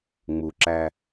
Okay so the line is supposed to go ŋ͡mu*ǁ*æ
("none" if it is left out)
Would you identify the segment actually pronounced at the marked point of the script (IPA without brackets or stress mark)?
ǁ